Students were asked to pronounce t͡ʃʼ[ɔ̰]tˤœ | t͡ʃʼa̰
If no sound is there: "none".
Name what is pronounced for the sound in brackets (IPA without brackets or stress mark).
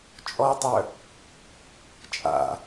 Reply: ɔ